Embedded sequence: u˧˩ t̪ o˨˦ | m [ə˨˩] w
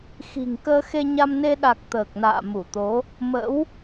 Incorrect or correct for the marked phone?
incorrect: ə̰˧˥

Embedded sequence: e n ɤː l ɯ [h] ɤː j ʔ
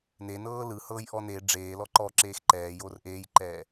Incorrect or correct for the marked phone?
correct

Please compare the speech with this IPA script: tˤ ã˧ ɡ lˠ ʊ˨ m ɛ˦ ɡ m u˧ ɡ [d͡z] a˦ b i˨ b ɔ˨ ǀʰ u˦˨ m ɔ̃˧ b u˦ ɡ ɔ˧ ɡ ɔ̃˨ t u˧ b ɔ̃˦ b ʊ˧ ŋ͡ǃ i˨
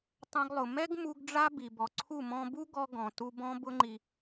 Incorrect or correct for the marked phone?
incorrect: ɖ͡ʐ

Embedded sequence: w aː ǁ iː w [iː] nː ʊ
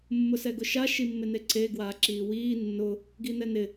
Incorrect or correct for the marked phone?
correct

